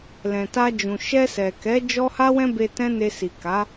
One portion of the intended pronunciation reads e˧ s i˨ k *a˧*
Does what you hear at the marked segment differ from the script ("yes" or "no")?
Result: yes